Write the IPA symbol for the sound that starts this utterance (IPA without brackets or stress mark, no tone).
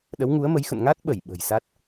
ɗ